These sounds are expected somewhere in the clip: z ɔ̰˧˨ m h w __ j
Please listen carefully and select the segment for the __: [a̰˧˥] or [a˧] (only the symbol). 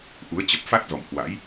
a̰˧˥